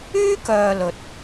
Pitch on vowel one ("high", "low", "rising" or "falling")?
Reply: high